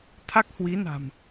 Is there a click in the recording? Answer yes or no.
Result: no